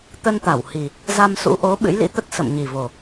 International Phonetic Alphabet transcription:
t̪ ə˧ n t̪ a˧˩ w h i˨˩ | z a˧ m s ṵ˧˥ ʔ o˨˦ ɓ ɨ̰˧˥ j l ḭ˧˥ t̪ ə˦˥ t̚ s ə̰˧˨ m ɲ i˨˩ v o˨˩

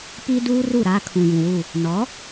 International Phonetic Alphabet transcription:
p i˦ d uː˦ r u˦˨ ɾ aː˦ kʰ ũ˨ j ũ˨ w u˦˨ | n ɔ˨˦

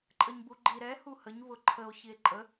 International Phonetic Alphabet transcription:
ǃʼ ə ɲ b u ɡ͡ǃ i ɾ ɛ h u h ə ɲ β ʊ ǃʰ ə o̯ ç i e̯ ǃʼ ə

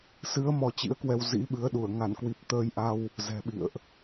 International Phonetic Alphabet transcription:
s ɨ˨˦ ə̯ m ɔ˧ t͡ɕ ḭ˧˥ ə̯ k w ɛ˧ w z ḭ˧˥ ɓ ɨ˨˦ ə̯ ɗ u˧˩ ə̯ ŋ a˧˩ n k w i˨˩ p̚ t̪ əː˧ j ʔ a˧ w | z ɛ̤˨˩ ɓ ḭ˧˨ ə̯ ʔ

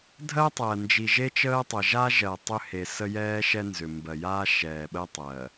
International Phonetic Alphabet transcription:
dʱ ɜ˦ tˤ ɜ˨ n d͡ʒ i˨ ʒ e˦ t͡ʃ əː˦ tˤ ə˨ ʒ a˦ ʒ ɜ˨ tˤ ʏ˦ h e˨ s ə˦ j ɛː˦ ʃ ɛ˦ n z ʏ˨ m b ɜ˨ j aː˦ ʃ ɛː˨ ɓ ə˦ tˤ ɜ˨

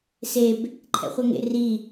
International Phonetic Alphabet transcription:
s e b | ǃʰ ɛ̰ χʷ ɛ ŋ ḛ r i

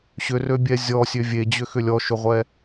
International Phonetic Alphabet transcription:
ɕ ʏ r ø bʲ ɛ zʲ ɔ sʲ ø vʲ e d͡ʑ ʏ x ʏ lʲ ɔ ʃ ʏ ʁʷ ɛ

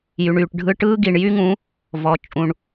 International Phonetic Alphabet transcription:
j y˨ ɳ yː˨ ʈ ɖʱ ɯ˧ ʈ ɯː˦ ɡ i˨ ɳ j y˦ ŋ ũ˨˦ | v ɔ˨ t͡ʃʼ ũ˨ ɳ

